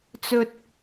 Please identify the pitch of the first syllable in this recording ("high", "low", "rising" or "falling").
low